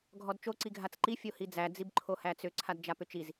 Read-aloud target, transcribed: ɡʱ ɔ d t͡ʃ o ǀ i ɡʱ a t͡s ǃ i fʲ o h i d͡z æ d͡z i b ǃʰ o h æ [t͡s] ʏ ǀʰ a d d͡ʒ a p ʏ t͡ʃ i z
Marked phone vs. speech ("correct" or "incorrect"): correct